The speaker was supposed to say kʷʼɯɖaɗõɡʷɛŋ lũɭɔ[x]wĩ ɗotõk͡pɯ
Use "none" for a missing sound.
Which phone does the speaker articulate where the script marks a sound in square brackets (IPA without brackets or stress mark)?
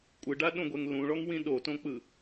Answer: ŋ